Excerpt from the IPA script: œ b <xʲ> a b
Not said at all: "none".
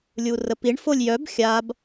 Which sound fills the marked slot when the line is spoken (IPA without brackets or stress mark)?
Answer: xʲ